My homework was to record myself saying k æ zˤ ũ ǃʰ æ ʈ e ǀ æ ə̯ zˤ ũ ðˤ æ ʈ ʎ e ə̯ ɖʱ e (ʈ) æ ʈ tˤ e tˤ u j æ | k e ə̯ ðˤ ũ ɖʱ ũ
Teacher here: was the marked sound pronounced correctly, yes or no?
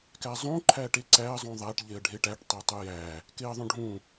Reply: yes